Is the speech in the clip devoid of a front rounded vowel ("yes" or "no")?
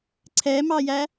yes